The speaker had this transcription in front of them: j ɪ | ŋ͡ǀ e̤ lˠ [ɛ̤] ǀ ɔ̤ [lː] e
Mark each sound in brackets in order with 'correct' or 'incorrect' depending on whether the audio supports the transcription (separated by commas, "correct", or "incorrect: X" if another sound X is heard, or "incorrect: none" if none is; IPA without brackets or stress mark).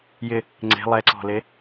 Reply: incorrect: ɛ, incorrect: l